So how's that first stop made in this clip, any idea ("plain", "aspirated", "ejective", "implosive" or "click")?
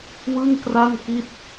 plain